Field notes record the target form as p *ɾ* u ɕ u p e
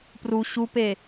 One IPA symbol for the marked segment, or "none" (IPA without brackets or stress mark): r